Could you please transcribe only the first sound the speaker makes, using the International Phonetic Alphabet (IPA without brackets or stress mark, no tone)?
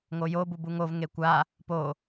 ŋ